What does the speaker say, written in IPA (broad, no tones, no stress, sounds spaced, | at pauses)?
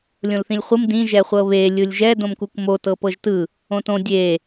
lʲ õ l θ ĩ lʲ χʷ ɯ m d ĩ ʒ ɛ χʷ ɤ β e lʲ ɯ lʲ ʒ ɛ d õ m k u k m o t ɤ p ɤ ʒ t ɯ | õ t õ dʲ e